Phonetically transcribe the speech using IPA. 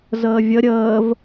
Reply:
z əː vʲ ə ɾʲ əː v

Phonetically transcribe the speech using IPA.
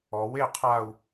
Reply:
ɔ w e qʰ a u̯

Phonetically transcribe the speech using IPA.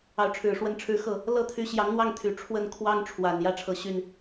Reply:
ɑ˧˥ ʊ̯ ʈ͡ʂʰ ɻ̩˨˩ ʂ w ə˥˩ n ʈ͡ʂʰ ɻ̩˥ x ɤ˥˩ | l ɤ˥˩ t̪ʰ y˧˥ ɕ j ɑ˧˥ ŋ n̪ w ɑ˥˩ ŋ t̪ʰ y˨˩ ʈ͡ʂʰ w ə˥˩ n kʰ w ɑ˥ ŋ ʈ͡ʂʰ w a˨˩ n j ä˥ ʈ͡ʂʰ ɤ˧˥ ɕ y˥˩ n

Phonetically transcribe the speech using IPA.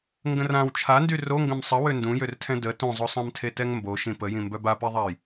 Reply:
ŋ ɡ ə̃ r ã w t͡ʃʰ a n d y r o ŋ ɡ ə̃ m sˤ ə w ø n d ũ j ø r tʰ ɛ̃ d ə t õ zˤ o sˤ ã m tʰ e t ɛ ŋ m b o ʃ ĩ p ə j ĩ m b œ b a p i ðˤ a j

